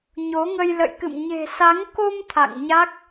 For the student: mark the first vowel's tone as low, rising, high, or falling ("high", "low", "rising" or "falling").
rising